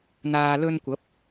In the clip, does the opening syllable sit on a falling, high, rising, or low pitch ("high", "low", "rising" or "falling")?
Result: low